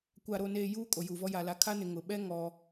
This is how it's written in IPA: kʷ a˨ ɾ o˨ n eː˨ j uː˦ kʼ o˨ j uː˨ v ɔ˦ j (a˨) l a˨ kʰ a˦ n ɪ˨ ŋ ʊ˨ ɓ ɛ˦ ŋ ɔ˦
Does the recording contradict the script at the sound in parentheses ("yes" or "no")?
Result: no